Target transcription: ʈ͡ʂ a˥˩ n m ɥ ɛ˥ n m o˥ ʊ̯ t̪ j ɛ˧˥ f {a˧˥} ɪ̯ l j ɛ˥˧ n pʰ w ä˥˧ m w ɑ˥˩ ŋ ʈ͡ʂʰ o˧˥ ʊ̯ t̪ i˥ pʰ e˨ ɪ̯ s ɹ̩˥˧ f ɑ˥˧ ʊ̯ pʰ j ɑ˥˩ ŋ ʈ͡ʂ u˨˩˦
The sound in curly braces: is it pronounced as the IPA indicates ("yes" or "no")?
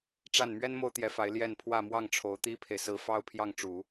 yes